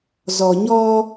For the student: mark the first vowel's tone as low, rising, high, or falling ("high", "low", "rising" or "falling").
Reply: low